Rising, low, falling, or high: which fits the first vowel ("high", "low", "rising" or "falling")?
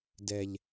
low